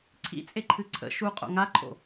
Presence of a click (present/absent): present